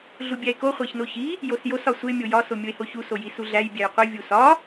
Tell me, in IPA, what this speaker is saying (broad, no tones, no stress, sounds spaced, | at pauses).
ɮ u bʲ æ e̯ k o χʷ æ ç n o ç i | j o s j o s ɒ sʷ e mʲ o j ɒ s o mʲ o e̯ h o ç u s o j i s u ɮ æ j bʲ æ j qʷ i vʲ u s ɒ